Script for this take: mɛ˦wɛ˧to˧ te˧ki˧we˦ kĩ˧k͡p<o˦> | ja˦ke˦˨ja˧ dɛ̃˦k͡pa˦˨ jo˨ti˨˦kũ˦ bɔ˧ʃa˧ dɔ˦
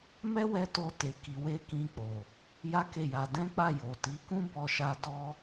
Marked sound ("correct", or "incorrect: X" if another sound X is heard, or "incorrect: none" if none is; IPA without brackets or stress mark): incorrect: o˨